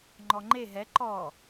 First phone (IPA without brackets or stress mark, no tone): ŋ͡ǃ